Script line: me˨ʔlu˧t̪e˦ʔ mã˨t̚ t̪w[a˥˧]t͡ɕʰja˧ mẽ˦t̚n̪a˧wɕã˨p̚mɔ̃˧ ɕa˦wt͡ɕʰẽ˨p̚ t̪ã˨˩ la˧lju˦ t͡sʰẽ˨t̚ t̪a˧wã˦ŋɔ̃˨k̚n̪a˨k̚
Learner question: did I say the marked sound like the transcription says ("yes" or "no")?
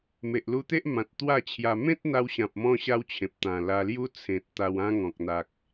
yes